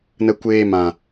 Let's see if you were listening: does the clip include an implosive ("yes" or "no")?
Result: no